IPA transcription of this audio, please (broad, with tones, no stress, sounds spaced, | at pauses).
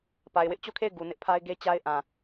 p a˨ ɪ̯ w ɪ˦ ʔ t͡ɕ o˦˨ kʰ e˦˨ ɪ̯ ɡ u˨ n ɪ˦ ʔ pʰ a˦ ɪ̯ ɡ e˦ t͡ɕ a˦ ɪ̯ ʔ ã˨